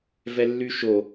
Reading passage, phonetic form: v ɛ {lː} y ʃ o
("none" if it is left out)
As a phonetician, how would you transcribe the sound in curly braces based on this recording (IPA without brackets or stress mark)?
lː